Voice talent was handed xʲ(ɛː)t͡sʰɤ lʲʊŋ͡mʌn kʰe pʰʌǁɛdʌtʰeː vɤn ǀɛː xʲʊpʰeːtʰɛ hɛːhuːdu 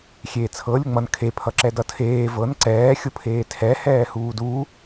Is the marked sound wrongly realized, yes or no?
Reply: yes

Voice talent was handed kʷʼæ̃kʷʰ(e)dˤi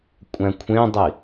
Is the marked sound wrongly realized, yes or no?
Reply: yes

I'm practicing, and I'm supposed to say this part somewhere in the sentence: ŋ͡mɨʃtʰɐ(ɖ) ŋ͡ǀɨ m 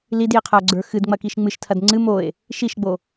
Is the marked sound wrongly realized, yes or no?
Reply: yes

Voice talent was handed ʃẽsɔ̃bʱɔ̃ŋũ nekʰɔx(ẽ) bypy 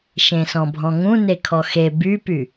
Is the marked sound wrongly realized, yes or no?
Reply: yes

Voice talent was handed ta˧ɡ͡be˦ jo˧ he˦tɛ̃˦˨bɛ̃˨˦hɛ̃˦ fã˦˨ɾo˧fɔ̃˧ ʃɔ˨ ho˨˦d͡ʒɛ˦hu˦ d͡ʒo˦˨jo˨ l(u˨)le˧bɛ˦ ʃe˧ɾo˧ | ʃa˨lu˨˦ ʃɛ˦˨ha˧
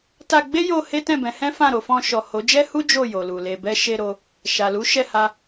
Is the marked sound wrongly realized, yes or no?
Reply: no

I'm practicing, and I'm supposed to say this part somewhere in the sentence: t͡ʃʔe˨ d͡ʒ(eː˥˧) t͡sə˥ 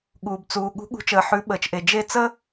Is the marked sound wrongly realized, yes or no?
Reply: yes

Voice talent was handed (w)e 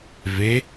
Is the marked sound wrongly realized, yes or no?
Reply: yes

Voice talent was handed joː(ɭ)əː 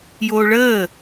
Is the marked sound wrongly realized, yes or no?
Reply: no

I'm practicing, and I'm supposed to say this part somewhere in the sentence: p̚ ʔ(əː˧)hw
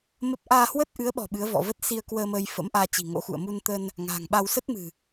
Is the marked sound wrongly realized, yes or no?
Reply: yes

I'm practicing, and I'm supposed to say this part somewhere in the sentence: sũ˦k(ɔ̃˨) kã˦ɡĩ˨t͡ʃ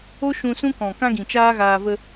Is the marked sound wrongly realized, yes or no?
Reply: no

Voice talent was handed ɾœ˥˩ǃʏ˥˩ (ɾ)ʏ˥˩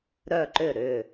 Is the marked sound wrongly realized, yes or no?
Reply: no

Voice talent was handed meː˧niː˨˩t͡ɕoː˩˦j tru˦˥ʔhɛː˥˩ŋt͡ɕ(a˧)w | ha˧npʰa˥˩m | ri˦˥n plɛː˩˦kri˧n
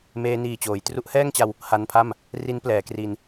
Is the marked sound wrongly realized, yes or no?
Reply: no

